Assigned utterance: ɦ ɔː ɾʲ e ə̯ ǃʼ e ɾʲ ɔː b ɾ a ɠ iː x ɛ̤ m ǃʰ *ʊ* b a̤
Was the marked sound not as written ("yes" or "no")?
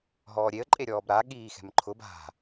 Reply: no